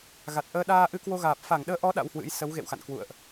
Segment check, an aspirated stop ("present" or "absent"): absent